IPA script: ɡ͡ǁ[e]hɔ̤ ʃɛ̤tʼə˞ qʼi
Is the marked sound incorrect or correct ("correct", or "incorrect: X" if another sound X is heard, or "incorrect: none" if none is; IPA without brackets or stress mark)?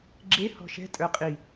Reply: correct